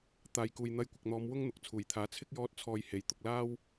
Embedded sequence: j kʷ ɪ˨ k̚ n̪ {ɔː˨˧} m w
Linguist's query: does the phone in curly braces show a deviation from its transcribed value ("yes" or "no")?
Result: no